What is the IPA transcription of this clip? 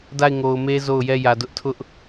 da˦˨ɪ̯ŋo˨ʊ̯me˦ zo˦˨ʊ̯ jɛ˦˨jä˨dʊ˦ʔ tʰʊ˦ʔ

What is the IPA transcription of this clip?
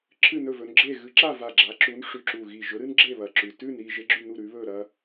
ǁʰɨ˥˨nɵ˥˨vɵ˨˥nɡ͡ǁe˥˨ ɣɨ˨˥ǁa˥˨va˧˩ ɡ͡ǁa˨˥ǁu˨˥n ʂʉ˧˩ǁu˧˩ɣi˧˩ ʒɵ˨˥ɾɨ˥nɡ͡ǁe˥˨ βɐ˧˩ǁʉ˧˩ tʉ˥˨nɾi˥˨ ʒe˥ɡ͡ǁʉ˥˨nu˥˨ɾʉ˨˥ βɵ˥˨ ɾɐ˥

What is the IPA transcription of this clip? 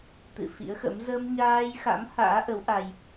t̪ɨ̰˧˨fḭ˧˥ə̯xə̰˧˥m zə˧mɲaː˧jxa̰˧˥m ha̰ː˧˥ʔə˨˦w ʔa˧j

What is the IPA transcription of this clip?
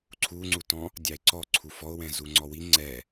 ǀʰuŋ͡ǀutɔ̃ | dʲɑe̯ǀɔ ǀʰufɔo̯wɛ̃ zuŋ͡ǀɔwi ŋ͡ǀɛ

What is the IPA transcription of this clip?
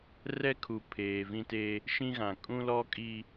rɛ˦kʰu˨ pʰeː˨vĩ˦te˦ | ʃĩ˦ɣã˨ kʼũ˦lɔ˦kʼi˦

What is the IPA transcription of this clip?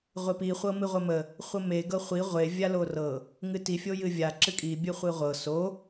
ʁʷepi χʷɤmɨʁʷəmə | χʷəme ɡɤχʷi ʁʷe vʲalorɤ | ŋɨti fʲojɨvʲa ǁɨkʼi bʲɨχʷɨʁʷɤ so

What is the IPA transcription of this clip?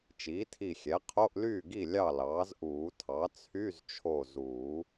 t͡ʃiː˩˥tʰi˧˩xʲɛ˩˥ qʰo˧˥˧ʔlyː˥˩ɡi˥˩ lʲɑ˥˩lɑː˩˥zʔuː˨˩˦tʰɑ˩˥ t͡sʰy˧˥˧zt͡ʃʰo˧˩zuː˨˩˦

